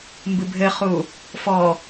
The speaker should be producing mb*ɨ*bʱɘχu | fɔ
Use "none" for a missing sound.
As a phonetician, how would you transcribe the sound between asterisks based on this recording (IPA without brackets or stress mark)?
ɨ